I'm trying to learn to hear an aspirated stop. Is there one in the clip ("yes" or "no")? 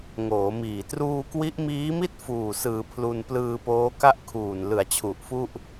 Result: yes